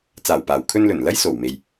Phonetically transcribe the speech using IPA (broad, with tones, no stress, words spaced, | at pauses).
t͡saː˨˩wpaː˨˩wkʰɵ˧nlɵ˨˩n lɐ˥jso˨˩wme˨j